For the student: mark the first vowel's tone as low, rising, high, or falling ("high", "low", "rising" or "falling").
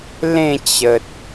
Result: falling